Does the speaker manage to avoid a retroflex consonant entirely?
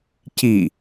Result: yes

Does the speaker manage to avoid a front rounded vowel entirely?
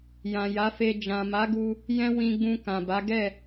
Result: yes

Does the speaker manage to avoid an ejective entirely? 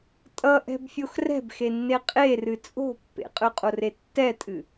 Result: no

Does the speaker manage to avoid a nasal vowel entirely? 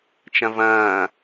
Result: no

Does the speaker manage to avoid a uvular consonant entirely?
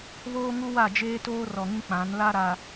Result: yes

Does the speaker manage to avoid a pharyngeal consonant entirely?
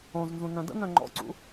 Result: yes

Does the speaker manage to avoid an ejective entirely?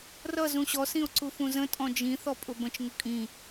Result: no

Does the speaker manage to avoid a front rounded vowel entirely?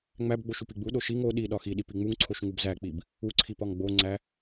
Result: yes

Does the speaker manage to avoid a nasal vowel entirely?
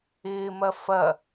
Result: yes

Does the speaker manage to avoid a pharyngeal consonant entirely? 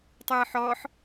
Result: no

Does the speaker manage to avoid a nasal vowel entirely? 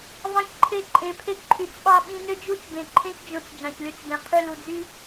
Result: no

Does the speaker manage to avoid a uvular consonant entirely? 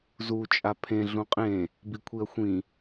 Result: no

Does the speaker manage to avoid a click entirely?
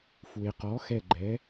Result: no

